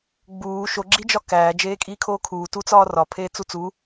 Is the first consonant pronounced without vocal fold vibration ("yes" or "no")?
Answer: no